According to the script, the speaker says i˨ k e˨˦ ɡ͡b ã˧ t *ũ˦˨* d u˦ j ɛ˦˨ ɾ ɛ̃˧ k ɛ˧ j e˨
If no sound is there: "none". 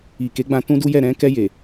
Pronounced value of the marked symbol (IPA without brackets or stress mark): ũ˦